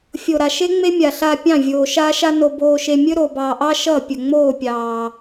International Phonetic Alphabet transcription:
fʲo˨ɾa˨ʃe˦ŋ͡me˦ mʲa˧ɬa˦ pʲɑ̃˦˨vʲoː˨ʃaː˦ʃa˦ no˧ boː˧ʃe˧ mʲɵ˦ɾo˨bɑː˨ʔɑ˦ ʃʌ˦˨ pʲɵ˨ŋ͡moː˦˨pʲɑː˨

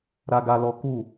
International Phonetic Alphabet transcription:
ɾa˦ɡa˦lɔ˦ ku˦˨

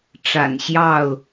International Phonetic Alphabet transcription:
ʈ͡ʂa̰˨˩nɕjɑ˥˨ʊ̯

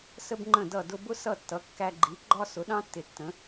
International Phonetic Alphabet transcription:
sə˥bŋ͡ǃə̃˥˩dʌ˥˩dʊ˥ bʊ˥sʌ˥˩ tːʌ˩˥kːæ˧ɡ͡ǃi˩˥ ɡ͡ǃɒ˥ sʊ˩˥ɗɑ̃˥tːɪ˩ tːə̃˩˥

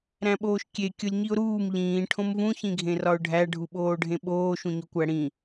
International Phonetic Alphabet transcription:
ɾæ̃ɓoːʃkʲe kʲolʲɲiʊ̯ɾuːm ʎĩː ʈʰõmvũ çĩɡʱẽrɒʊ̯ɖʱæ ɖʱuɓoːɖʱẽɓoː ʃũɲokʷæɽĩ

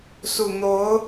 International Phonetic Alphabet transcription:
su˨˩n̪o˧˥ʊ̯

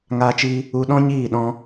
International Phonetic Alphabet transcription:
ŋaː˦t͡ʃi˦ | u˧ɗɔ̃˦ ɲiː˦˨ɗɔ̃˧

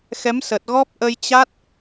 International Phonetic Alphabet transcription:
xɛ˨˦msə˨˩t̚ɣɔ˦˥p̚ ʔə˧jt͡ɕa˦˥t̚

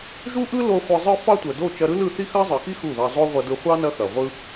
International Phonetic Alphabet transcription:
ʒu˦ʔɯ˦ lo˧ χʷɯ˧zˤɯ˦ fɑ˦tʷœ˨ do˦˨t͡ʃɐ˧ɾɯ˦lɯ˦˨ θi˦xɐ˦zˤɯ˨xi˦ xu˦˨ðɑ˧ zˤo˦ʁʷɐ˧dɯ˧ χʷɑ˦nɐ˧ xɐ˨ʁʷɯ˦

